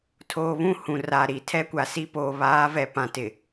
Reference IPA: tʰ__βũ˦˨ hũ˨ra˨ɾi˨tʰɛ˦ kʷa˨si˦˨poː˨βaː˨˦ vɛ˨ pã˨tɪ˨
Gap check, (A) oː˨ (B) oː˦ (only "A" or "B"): A